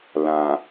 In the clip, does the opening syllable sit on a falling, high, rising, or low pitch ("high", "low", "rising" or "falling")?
low